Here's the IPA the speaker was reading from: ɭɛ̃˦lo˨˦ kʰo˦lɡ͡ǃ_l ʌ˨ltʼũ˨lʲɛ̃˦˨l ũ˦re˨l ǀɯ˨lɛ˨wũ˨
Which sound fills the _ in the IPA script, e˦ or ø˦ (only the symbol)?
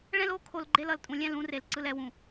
e˦